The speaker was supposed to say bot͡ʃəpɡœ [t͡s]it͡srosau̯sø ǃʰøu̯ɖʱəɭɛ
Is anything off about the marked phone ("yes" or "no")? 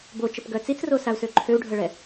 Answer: no